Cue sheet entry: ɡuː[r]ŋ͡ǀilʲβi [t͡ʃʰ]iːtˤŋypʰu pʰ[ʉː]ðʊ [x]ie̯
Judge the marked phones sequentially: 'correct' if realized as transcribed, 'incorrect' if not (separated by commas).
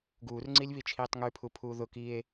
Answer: correct, correct, incorrect, incorrect